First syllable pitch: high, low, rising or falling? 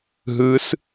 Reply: rising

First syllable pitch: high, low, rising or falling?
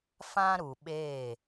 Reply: high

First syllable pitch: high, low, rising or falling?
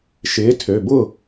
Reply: rising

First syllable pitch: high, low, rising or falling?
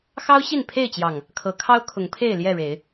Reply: high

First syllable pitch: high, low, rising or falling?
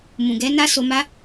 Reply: low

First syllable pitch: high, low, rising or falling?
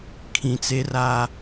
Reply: low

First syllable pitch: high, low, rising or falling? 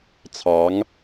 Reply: rising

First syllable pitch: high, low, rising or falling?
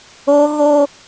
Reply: high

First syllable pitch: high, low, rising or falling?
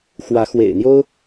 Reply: rising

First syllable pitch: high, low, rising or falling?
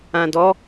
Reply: low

